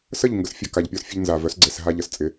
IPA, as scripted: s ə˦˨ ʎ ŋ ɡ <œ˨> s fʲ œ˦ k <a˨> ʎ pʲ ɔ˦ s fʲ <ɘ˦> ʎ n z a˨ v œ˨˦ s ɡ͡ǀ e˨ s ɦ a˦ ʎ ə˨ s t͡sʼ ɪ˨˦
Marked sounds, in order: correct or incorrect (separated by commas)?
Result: incorrect, correct, correct